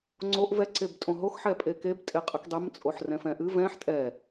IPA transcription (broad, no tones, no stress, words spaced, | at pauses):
ŋ͡ǀoʔ vɛ ǀebtʼõɦox ħɛpʼekeb tʼeqʼɨkdˤem t͡sʼoħrɛ̃fɛ̃ʔɨ vɛ̃ħ tʼɛ